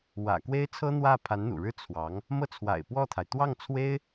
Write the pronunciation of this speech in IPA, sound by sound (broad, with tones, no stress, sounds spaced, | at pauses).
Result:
w ä̰˨˩ k w e˥ ɪ̯ t͡sʰ ɤ˥ n̪ w ä˥˩ pʰ a˧˥ n n̪ ṵ˨˩ ɻ ɻ̩˥ t͡sʰ w ɑ˧˥ ŋ | m ɤ˥˩ t͡sʰ w a̰˨˩ ɪ̯ p w ɔ˥˩ t̪ʰ a˩ ɪ̯ t̪ w ɑ˥˩ ŋ t͡sʰ w e˥ ɪ̯